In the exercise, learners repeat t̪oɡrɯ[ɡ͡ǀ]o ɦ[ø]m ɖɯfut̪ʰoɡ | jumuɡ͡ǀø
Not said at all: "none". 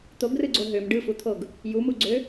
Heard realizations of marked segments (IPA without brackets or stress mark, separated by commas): ɡ͡ǀ, ø